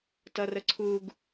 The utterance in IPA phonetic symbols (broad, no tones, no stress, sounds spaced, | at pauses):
t ʌ r ə ǀʰ u ɡ